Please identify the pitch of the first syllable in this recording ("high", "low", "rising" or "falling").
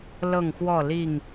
falling